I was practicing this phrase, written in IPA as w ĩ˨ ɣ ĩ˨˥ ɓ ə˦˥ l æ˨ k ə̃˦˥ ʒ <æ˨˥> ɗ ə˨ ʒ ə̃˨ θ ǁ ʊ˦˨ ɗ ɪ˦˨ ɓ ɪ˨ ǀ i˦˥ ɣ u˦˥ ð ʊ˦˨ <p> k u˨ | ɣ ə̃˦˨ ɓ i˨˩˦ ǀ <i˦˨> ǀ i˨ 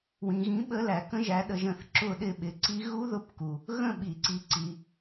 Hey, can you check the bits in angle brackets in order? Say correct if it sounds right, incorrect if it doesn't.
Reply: correct, correct, incorrect: i˨˥

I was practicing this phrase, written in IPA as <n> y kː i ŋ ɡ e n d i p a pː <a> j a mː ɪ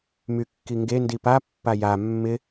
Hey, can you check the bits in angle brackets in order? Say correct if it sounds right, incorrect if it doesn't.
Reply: incorrect: m, correct

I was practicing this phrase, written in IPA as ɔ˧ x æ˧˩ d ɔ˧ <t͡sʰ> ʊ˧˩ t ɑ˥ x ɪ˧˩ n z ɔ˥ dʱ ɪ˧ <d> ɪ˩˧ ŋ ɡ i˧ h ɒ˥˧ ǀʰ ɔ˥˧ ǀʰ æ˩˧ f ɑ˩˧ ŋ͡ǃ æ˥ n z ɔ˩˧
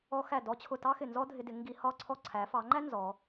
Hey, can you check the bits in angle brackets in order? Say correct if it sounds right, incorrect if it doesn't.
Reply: incorrect: t͡ɕʰ, correct

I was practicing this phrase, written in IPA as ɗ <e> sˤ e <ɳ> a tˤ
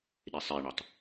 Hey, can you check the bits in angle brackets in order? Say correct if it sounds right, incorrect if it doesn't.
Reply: correct, correct

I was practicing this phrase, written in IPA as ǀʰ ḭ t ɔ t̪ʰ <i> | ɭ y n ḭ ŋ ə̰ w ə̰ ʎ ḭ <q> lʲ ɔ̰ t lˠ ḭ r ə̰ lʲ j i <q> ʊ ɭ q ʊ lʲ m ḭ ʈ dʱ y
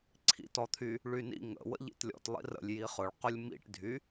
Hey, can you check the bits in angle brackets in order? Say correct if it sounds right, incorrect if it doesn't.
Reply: incorrect: y, incorrect: t, incorrect: χ

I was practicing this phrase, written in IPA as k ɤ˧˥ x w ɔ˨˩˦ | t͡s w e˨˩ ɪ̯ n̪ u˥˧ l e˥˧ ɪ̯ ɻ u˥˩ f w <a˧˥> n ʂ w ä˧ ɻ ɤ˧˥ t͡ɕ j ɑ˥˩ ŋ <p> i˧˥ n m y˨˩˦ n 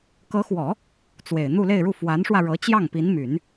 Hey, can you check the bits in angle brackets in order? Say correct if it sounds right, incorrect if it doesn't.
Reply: correct, correct

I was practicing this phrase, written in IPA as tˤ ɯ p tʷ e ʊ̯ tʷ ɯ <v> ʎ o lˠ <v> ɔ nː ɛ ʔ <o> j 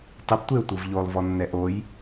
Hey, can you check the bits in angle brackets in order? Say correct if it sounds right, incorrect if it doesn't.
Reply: correct, correct, correct

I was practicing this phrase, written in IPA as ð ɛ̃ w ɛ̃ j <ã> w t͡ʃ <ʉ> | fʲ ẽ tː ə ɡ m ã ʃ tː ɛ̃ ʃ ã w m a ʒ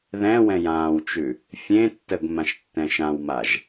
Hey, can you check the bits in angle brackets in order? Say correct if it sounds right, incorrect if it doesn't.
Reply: incorrect: ãː, correct

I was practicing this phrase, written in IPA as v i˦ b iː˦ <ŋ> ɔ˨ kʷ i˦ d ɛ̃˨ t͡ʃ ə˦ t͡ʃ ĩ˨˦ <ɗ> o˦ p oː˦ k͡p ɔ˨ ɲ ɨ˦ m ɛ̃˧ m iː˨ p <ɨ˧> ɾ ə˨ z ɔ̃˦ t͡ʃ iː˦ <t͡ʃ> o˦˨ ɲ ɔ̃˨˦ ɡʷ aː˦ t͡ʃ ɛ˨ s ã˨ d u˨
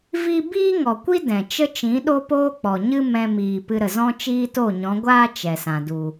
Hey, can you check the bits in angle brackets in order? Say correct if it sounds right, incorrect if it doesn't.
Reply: correct, correct, correct, incorrect: t

